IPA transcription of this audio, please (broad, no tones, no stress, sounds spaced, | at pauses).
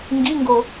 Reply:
ŋ ɡ i ŋ ɡ o